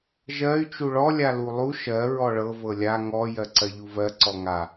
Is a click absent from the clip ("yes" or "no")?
no